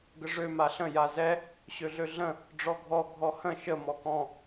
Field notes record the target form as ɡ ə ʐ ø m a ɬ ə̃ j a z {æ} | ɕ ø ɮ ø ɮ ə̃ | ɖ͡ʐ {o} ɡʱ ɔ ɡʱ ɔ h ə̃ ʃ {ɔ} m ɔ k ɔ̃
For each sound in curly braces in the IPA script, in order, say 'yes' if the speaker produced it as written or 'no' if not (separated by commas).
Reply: no, no, no